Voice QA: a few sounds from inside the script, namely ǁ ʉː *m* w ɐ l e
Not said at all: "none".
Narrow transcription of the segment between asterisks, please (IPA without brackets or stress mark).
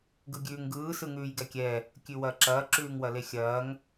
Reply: ŋ